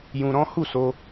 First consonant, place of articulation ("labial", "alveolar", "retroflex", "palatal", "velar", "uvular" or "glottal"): palatal